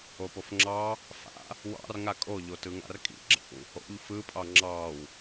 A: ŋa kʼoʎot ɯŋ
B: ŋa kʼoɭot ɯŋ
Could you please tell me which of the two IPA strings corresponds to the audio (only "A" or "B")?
A